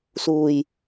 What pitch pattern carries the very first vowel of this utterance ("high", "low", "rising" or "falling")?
low